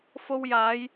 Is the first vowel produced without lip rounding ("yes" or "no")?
no